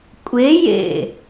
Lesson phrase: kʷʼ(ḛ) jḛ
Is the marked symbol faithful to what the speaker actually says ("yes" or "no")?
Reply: no